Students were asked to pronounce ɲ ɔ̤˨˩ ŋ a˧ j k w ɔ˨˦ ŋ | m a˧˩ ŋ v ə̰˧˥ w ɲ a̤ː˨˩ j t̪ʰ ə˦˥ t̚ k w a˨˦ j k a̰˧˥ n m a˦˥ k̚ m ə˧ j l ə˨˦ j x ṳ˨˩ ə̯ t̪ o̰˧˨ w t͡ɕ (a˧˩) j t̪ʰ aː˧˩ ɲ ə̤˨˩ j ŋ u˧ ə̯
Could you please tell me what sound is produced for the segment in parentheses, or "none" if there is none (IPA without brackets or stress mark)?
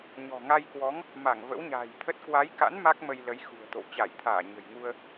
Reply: a˧˩